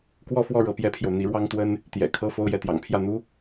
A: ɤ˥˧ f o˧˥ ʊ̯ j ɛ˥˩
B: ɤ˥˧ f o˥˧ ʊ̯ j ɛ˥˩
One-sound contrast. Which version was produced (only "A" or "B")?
B